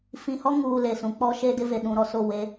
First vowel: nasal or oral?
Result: nasal